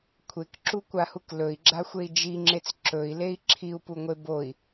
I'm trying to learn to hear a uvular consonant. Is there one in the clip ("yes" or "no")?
no